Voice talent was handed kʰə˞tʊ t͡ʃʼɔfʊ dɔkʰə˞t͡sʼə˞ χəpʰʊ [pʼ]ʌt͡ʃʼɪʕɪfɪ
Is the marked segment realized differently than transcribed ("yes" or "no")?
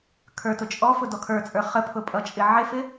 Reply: no